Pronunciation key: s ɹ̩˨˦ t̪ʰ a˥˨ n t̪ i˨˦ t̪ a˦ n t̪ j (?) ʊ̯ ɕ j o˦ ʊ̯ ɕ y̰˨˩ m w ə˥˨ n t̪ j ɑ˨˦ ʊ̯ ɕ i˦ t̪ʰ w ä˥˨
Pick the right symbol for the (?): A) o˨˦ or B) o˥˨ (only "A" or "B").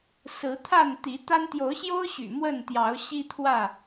A